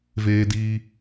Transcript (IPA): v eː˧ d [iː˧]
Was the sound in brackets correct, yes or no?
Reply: yes